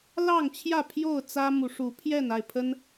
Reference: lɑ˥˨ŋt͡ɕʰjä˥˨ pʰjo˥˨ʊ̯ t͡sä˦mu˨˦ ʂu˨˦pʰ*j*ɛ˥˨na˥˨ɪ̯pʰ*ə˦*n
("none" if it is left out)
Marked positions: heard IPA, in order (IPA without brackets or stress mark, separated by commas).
j, ə˦